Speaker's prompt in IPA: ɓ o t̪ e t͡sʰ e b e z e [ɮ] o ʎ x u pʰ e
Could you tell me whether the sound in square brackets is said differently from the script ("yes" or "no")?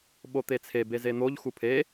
yes